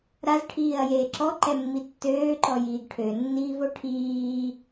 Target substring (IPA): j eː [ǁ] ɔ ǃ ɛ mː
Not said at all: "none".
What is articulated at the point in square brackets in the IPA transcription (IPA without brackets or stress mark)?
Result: ǁ